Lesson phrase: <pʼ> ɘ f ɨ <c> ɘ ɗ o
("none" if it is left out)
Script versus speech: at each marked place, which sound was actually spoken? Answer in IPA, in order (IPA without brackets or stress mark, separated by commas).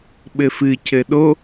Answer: ɓ, c